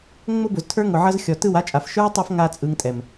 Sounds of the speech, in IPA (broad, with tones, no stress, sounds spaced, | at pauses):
ŋ͡m ʊ˦ b ʊ˨ z tʰ ə˞˦ ŋ ʊ˨ ʕ ʌ˧ z xʲ ɔ˨ t ɯ˦˨ w a˦ t͡ʃʼ a˨ f ʃ ə˞˦ tˤ ʌ˧ f ŋ a˦ t͡sʼ ɯ˧ ŋ tʼ ɛ˨ m